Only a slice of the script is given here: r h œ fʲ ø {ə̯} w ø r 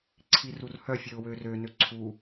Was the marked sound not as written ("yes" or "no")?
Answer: yes